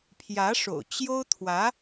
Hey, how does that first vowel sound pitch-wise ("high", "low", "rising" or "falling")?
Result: rising